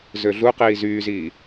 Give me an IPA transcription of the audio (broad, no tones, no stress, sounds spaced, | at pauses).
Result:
z ø ɮ u q iː z yː z iː